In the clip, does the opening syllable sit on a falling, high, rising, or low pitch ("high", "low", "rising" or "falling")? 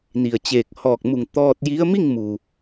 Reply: low